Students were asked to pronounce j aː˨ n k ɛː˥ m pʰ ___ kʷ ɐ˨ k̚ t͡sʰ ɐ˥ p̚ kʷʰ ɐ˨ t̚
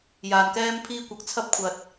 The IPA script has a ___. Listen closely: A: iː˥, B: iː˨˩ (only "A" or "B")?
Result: A